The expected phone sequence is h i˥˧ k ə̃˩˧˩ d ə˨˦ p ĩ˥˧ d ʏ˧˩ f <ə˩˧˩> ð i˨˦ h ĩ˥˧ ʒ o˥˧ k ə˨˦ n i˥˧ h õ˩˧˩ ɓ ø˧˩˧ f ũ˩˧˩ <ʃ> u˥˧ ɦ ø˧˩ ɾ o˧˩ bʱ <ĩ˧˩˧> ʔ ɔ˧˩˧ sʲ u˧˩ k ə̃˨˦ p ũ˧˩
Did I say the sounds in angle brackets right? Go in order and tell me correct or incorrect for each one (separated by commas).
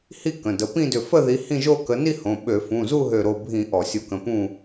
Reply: incorrect, incorrect, correct